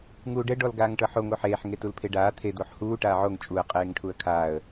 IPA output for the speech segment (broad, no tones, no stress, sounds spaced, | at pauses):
ŋ uː ɖ ɛ ɖ ɔ l ɡ aː ŋ ʈ ɤ ħ o ŋ o ħ eː ħ ŋ e t u l pʰ e ɖ aː t̪ʰ e d̪ o ħ h uː ʈ aː ʕ o ŋ t͡ʃʼ u ə̯ qʼ eː ŋ ʈʰ u ə̯ kʰ aː ə̯